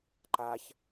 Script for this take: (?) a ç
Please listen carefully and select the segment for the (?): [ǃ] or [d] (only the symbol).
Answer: ǃ